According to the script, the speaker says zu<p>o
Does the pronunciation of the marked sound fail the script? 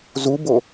yes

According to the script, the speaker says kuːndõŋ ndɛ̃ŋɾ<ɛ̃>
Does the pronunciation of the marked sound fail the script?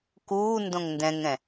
no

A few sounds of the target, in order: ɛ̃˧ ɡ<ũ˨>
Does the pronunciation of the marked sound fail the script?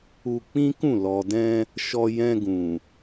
no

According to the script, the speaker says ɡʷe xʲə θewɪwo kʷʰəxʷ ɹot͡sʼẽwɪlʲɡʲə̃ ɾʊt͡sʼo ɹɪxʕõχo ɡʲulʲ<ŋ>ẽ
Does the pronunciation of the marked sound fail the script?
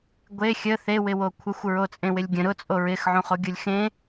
yes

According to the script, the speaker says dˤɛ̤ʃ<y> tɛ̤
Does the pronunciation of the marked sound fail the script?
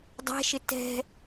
yes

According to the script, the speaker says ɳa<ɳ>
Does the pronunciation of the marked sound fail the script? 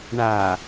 yes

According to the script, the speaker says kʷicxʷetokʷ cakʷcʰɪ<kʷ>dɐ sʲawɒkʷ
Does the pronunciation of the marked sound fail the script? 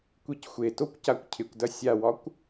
no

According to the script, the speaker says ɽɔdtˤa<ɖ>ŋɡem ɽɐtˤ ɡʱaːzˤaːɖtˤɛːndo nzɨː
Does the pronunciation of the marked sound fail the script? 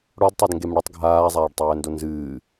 yes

